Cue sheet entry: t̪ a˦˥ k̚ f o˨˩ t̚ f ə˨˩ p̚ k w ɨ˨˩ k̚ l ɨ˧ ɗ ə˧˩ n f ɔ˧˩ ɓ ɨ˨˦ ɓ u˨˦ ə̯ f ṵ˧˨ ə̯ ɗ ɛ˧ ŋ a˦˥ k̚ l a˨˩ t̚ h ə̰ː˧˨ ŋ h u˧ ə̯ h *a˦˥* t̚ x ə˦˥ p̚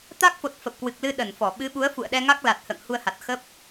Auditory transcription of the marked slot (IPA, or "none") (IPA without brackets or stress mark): a˨˩